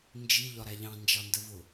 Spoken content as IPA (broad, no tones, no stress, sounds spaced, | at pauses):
n d͡ʒ i ʎ ɒ ɾ æ ʎ ɑ̃ n d͡ʒ ɑ n d ə v ʊ